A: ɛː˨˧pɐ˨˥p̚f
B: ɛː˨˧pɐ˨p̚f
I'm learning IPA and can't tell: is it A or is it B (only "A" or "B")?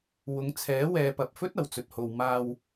B